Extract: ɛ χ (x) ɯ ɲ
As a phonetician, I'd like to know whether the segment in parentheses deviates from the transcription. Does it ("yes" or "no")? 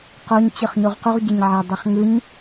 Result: yes